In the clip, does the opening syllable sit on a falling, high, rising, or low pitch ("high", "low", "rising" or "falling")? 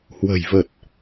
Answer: low